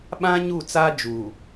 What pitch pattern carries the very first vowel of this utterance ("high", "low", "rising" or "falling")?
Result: high